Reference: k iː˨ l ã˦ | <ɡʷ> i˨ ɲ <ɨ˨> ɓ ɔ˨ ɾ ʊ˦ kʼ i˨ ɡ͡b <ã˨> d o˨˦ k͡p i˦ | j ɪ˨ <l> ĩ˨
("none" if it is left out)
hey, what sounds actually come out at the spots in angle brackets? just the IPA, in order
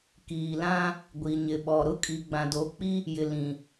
ɡʷ, ɪ˨, ã˨, l

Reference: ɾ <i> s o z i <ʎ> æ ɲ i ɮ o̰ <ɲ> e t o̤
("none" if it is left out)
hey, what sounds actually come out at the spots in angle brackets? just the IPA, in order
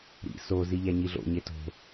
ḭ, ʎ, ɲ

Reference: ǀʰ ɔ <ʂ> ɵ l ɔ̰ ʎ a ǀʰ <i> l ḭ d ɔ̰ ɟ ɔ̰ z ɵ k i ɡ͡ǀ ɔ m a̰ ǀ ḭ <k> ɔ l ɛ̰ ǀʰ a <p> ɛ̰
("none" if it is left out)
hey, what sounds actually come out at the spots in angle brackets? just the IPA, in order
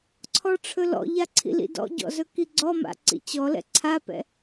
ʈ͡ʂʰ, ḭ, t͡ɕ, p

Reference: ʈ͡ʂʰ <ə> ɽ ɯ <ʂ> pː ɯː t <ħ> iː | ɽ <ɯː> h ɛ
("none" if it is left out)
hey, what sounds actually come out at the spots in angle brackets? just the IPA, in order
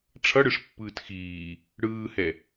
ʌ, ʂ, x, ɯː

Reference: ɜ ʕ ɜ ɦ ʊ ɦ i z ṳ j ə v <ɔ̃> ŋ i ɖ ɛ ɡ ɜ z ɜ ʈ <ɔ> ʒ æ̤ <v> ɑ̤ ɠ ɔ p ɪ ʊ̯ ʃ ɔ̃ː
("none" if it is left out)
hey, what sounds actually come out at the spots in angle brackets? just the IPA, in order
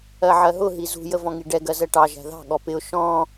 ɔ̃, ɑ, ð

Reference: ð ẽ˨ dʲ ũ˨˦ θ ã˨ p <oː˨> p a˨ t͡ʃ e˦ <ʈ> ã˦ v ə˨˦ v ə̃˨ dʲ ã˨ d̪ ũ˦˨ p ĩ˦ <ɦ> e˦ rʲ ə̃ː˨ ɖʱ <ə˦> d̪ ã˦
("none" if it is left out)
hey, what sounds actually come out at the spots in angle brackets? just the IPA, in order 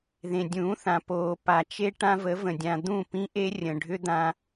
oː˨, ʈ, ʔ, ʏ˦

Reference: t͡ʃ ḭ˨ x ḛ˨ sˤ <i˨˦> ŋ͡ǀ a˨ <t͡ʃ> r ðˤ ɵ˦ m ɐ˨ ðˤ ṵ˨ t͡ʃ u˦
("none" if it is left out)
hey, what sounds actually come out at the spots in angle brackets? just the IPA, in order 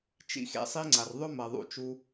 i˦, none

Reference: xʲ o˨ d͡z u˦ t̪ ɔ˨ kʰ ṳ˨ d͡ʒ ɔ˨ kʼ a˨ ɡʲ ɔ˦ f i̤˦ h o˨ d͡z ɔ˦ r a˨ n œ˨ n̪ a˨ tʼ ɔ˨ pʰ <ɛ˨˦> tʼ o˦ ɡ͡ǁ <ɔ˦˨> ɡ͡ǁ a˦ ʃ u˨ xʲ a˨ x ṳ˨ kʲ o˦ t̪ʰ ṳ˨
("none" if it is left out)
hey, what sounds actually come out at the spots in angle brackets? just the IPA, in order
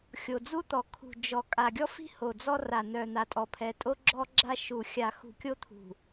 ɛ˨˦, ɔ˦

